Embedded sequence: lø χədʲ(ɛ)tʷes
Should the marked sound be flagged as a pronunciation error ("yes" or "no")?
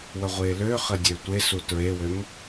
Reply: yes